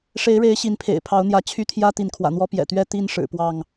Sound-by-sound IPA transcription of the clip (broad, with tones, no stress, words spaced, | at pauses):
ʂe˨˦ɪ̯ɻe˨˦ɪ̯ ɕi˨˦npʰḛ˨˩ɪ̯pʰɑ˨˦ʊ̯n̪jä˨˦ t͡ɕʰy˥˨t̪ʰjä˦ t̪i˨˦nkʰwä̰˨˩n̪wɔ˦ pjɛ̰˨˩t̪ɥɛ˥˨ t̪i˥˨n ʂɻ̩˨˩pwɑ˥˨ŋ